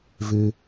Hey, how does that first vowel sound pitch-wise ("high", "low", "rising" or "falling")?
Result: high